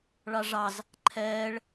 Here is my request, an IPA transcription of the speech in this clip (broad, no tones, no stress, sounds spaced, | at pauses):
ɭ ɑ ʐ ɑ z | ǃʰ ɛː ɭ